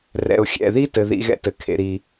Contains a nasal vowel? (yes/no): no